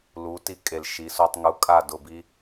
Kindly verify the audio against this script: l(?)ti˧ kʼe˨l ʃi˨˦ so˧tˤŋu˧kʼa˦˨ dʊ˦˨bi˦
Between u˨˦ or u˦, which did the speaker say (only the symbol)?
u˨˦